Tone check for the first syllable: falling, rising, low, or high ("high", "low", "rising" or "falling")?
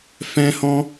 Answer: high